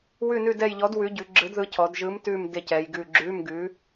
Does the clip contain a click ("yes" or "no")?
yes